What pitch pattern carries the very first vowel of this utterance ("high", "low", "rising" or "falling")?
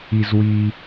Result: high